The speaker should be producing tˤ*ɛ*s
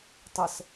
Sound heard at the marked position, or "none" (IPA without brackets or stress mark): ə